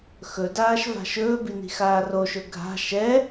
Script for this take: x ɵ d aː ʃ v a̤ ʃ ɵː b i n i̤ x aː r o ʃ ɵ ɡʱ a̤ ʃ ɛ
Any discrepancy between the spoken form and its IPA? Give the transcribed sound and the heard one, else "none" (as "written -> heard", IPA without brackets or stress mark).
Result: none